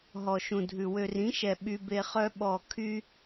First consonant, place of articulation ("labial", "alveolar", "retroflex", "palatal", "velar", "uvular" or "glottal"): glottal